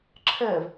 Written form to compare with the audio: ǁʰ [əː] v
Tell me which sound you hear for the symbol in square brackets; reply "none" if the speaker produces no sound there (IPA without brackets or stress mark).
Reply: əː